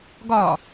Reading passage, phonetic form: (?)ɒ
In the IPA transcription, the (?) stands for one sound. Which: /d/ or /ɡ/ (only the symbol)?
ɡ